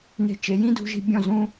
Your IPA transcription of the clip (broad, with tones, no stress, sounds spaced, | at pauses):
n e̤˧ t͡ʃ e˨˦ j ĩ˦ d ṳ˦ ʒ i̤˦ bʲ ɔ̃˦˨ z ũ˦